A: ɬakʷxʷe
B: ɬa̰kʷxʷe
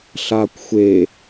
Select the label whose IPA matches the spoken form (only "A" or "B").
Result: A